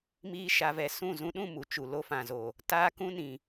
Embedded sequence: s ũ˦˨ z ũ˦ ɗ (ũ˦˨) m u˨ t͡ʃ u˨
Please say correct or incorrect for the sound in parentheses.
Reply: correct